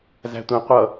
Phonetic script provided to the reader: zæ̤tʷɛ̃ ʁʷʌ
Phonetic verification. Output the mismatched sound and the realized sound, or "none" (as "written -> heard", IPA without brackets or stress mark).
ʁʷ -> qʷ